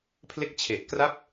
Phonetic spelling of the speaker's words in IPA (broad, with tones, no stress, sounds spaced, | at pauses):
pʰ l e˥˩ k̚ t͡ɕʰ e˨˩ ʔ k r a˥˩ p̚